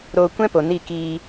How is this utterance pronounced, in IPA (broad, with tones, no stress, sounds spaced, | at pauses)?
ɾ oː˧ kʷ ɛ̃˦ p o˨ n i˦˨ k iː˧